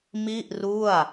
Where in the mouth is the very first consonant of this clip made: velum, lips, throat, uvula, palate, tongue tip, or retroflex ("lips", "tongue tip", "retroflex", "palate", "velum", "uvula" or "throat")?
lips